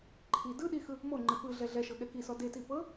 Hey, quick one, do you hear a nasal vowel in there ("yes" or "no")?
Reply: no